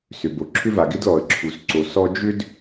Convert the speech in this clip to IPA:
sʏ˨bo˨ǁʰʏ˦ va˨ɡɪ˦d lɔ˨ə̯ǁʰu˨s ǀo˨ sɔ˦ d͡ʒʏ˦d

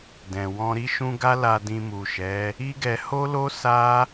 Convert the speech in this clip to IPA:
dɛ̃˨ wɔ̃˧ɾi˦ʃũ˦ ɡa˦ la˧dĩ˧mu˨ʃɛ˨˦ | i˦ɡɛ˧ ho˦lo˦ sa˦

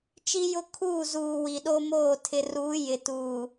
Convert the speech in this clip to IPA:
t͡ʃi˦jʊ˦ kʰuː˦˨zuː˨ wi˨ɗo˦moː˦˨ tʰɪ˨ruː˨˦ jɪ˨tuː˨

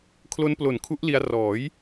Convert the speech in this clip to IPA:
kʰlo˦˥nplo˨˩nkʰu˦˥ʔli˧a̯ rɔː˩˦j

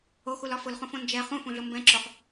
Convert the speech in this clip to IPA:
oxulɒ fʊlχũfõ nd͡ʒɛ χũfũɮʊ mbɛ̃ǁoχ

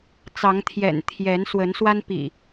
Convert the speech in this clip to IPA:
t͡sɑ˨˦ŋt̪ʰjɛ̰˨˩n t̪ʰjɛ˨˦nswə˨˦n swa˦n pḭ˨˩

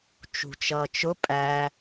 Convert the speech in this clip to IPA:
t͡ʃṳt͡ʃʌːt͡ʃʊ pʼæ

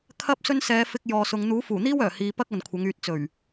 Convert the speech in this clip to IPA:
kʰɐ˥p̚ sɵ˥n sɛː˨˧ fɪ˧k̚ jɔː˨sʊ˨˧ŋ n̪uː˨˥fuː˨˩n̪iː˥w œː˨˩hiː˨˧ pɐ˥k̚ ɐ˨nkʷʰɐ˨˥ŋyː˧t̚ t͡sɵ˨˩ɥ

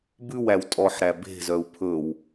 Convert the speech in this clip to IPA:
bʉwæw tʼɔħɾæ be̤zœu̯ pʰɵw

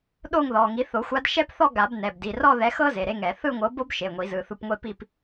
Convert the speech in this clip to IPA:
ɗo˥˧ŋ ðɔ˩˧˩ŋi˨˥ θo˨˩˦xʷa˨˥dʃɛ˥pθɔ˥˧ ɡa˨˩˦bnɛ˩˧˩bdi˩˧˩ rɔ˥˧ðɛ˨˥xɤ˥ ze˩˧˩ɾe˥ŋɛ˨˩˦ θɯ˥˧ŋʷɤ˨˥bo˥b ʃe˩˧˩ŋʷi˨˩˦zɯ˩˧˩θu˧p ŋʷe˥˧pi˥˧p

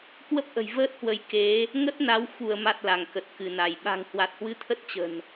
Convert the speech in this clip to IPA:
kwə˦˥p̚ʔə̤˨˩jvəː˦˥t̚hwə˨˦j ke˨˦ | ŋə˦˥t̚na˨˦w xu˧˩ə̯ma˨˩t̚ la˧˩ŋkə˨˩t̚kɨ˧˩na˧˩j ɓa̤˨˩ŋhwa˨˩t̚hwɨ˧ t̪ʰə˦˥t̚t͡ɕə̤˨˩n

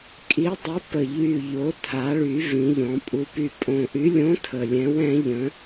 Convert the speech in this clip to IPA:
kʼi˨˥dˤə˨˥pə˨˩ ʎy˨˩ʎo˩˧tʰa˩˧ɭy˩˧ vĩ˩˧ʎɔ̃˩˧ pʼu˩˧py˨˩pʼõ˨˩ʔy˨˥ lʲõ˨˥ tʰə˨˩lʲɛ̃˨˥wɛ̃˨˥ʎə̃˨˥

